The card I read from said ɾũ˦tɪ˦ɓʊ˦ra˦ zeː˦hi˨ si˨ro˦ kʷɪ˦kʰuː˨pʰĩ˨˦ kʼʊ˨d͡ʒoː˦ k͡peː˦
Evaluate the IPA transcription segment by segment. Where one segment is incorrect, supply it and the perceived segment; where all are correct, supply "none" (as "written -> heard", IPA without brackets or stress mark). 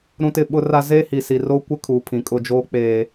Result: none